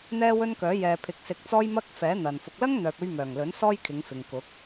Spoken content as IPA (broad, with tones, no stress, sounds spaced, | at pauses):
n̪ ɛː˥ w ɵ˥ n k œː˨˥ j ɛː˨ pʰ ɪ˨ k̚ s ɪ˧ k̚ t͡s ɔː˥ j m ɐ˥ k̚ f ɛː˨˥ n̪ ɐ˨ n f ʊ˨ k̚ l ɐ˥ ŋ n̪ œː˨ p̚ ɵ˧ ɥ m œː˨˩ ŋ l ɵ˨˥ n s ɔː˥ j kʰ ɪ˨˧ ŋ f ɪ˨ ŋ k ʊ˨˥ k̚